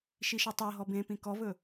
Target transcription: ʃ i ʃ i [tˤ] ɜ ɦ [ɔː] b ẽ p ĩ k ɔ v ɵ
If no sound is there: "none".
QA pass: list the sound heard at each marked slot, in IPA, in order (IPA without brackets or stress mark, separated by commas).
tˤ, ɔ